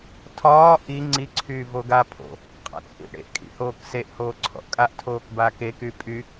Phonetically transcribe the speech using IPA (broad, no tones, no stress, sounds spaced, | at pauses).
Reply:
tʰ ɒː ʔ i ŋ͡ǀ i ǀʰ yː v o ɡ a pʰ o̰ | qʼ a̰ t͡sʼ ḭ ʔ ɽ ḛ ʔ kʼ ḭ h oː k s e ʔ h oː ǀʰ ɔ̰ ʔ kʼ a ʔ tʰ oː k b a k e k y pʼ y